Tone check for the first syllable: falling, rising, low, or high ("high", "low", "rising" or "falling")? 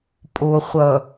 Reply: low